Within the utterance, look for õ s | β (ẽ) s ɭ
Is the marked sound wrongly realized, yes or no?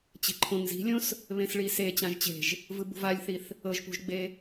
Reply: no